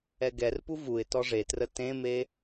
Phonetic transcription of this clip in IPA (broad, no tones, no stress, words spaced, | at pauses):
ɛɡɛrpu vuɪ̯ tɔʐetrə tẽme